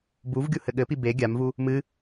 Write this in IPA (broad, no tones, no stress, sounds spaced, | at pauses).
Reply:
b u v ɡʲ u h ɘ ɠ ɘ p i b e ɡʲ a m v u | m ɨ